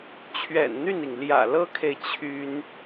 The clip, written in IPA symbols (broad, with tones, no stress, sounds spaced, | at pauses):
t͡ɕʰ ɥ ɛ̰˨˩ n n̪ y˥˩ n i˩ ŋ l j ä̰˨˩ l ɤ˥ kʰ e˨ ɪ̯ t͡ɕʰ y˥ n